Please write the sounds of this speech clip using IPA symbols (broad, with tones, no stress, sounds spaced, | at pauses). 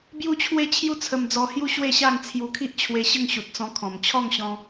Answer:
b j u˦ t͡ɕʰ w e˥˧ t͡ɕʰ j u˥˧ t͡sʰ ə˧ m d͡z ɔ˧ h j u˦ ɕ w e˥˧ ɕ a˥˧ ŋ t͡sʰ j u˧ kʰ i˦ ʔ t͡ɕʰ w e˧ ɕ ə˥˧ ŋ ɕ u˨ t̚ t͡s ɔ̃˧ kʰ ɔ̃˨˩ m t͡ɕʰ ɔ˥˧ ŋ ɕ ɔ̃˧